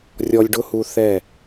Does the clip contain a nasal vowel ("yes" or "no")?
no